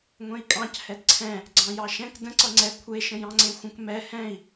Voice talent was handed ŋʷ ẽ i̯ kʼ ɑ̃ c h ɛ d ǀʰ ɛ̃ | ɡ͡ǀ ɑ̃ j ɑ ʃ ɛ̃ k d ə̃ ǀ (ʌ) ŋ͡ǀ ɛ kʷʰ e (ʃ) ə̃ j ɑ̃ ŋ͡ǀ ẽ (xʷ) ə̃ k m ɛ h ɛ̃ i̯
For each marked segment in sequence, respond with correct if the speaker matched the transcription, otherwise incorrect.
correct, correct, correct

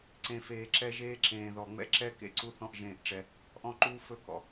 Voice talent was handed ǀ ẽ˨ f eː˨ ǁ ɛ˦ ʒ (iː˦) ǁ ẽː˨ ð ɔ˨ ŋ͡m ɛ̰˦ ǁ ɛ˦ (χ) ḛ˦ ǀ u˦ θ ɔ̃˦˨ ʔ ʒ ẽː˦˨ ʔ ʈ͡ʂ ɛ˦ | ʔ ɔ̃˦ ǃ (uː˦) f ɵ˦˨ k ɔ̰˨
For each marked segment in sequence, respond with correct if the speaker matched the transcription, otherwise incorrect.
incorrect: eː˦, incorrect: k, correct

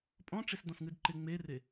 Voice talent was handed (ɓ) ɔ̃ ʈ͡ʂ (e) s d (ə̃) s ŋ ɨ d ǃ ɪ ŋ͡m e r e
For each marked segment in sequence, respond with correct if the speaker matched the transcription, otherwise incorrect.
incorrect: pʼ, correct, incorrect: ɔ̃

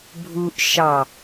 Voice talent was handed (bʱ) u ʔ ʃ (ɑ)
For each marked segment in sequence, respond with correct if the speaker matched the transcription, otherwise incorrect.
correct, correct

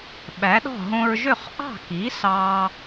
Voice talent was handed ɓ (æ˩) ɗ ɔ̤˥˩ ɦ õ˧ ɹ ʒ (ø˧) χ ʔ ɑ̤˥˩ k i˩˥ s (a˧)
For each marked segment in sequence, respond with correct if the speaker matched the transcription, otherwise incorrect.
incorrect: æ˩˥, incorrect: ø˥˩, incorrect: ɑ˧

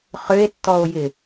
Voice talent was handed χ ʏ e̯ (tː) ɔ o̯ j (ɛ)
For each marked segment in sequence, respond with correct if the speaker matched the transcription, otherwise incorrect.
correct, incorrect: ɪ

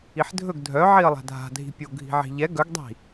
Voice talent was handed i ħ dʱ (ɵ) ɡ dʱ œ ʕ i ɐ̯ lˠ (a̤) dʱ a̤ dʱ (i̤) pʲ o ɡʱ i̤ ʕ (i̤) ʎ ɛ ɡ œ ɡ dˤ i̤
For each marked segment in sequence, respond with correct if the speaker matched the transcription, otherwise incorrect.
correct, correct, correct, correct

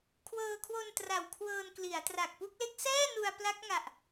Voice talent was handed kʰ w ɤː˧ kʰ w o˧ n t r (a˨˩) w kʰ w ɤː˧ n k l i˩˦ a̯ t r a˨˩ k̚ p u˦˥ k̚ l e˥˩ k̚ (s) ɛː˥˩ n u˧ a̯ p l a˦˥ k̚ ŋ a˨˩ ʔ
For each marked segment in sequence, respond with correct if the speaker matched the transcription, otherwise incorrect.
correct, correct

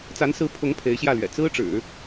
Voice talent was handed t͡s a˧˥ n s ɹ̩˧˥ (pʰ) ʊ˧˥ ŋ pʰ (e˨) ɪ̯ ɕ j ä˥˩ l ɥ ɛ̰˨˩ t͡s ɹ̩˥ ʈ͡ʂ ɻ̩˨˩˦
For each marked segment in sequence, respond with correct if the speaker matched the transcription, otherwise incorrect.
correct, incorrect: e˧˥

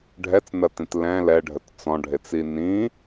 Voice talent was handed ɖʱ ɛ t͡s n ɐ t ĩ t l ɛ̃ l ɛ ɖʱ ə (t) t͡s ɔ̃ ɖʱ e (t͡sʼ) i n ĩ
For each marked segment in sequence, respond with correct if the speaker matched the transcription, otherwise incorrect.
correct, incorrect: t͡s

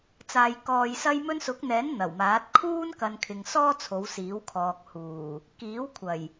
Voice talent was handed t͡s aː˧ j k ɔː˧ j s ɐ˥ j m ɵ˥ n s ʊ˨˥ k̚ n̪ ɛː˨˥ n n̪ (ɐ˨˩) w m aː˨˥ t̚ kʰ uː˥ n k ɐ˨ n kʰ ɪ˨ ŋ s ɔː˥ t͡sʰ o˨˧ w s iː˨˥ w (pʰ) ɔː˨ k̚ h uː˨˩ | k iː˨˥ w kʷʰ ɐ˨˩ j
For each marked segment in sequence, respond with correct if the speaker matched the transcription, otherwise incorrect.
correct, incorrect: kʰ

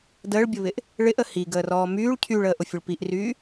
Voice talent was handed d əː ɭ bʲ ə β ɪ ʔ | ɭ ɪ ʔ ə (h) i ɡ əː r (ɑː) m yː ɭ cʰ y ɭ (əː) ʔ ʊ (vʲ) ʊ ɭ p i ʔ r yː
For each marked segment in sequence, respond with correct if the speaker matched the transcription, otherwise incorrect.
correct, incorrect: ɔː, correct, incorrect: fʲ

